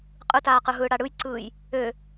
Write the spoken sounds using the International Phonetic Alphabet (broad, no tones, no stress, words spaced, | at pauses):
qʼɯtaːqɯ ɦɯːɽaɽɯjǀɯːj | ø